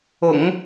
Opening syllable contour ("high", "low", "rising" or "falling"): low